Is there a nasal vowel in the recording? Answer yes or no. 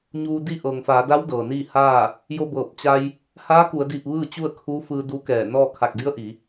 no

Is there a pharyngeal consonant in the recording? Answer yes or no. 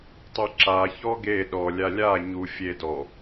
no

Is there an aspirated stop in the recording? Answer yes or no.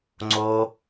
no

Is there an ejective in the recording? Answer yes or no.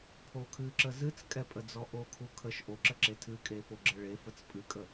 yes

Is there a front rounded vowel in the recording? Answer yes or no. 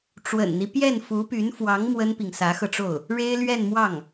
yes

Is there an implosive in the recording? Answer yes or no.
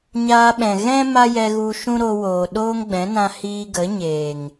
yes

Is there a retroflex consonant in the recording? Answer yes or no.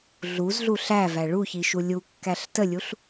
yes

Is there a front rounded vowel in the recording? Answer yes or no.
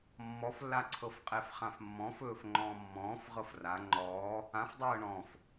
no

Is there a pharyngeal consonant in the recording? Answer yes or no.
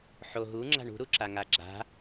yes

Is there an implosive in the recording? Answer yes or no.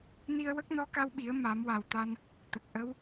yes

